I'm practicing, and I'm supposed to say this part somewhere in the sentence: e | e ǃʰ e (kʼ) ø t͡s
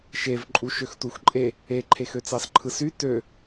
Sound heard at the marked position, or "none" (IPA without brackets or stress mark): x